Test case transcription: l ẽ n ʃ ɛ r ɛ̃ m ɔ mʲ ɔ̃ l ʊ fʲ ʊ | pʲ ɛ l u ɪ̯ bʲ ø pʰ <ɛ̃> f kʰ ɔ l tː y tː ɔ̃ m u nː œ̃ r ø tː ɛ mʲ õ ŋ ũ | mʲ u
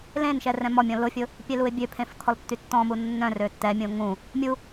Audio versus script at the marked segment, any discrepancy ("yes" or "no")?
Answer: yes